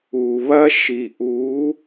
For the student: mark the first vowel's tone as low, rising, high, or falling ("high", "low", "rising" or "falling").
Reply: low